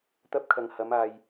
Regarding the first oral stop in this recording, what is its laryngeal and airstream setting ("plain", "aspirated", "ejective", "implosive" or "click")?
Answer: plain